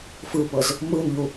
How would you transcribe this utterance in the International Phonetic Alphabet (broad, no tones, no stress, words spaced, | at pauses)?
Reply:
fɯpɤz | mɯnʎu